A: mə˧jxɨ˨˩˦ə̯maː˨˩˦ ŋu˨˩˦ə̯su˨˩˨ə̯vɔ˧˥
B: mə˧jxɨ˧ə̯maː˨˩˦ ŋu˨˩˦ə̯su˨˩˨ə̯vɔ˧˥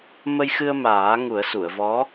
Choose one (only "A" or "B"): B